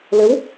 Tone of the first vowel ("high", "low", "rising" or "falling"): rising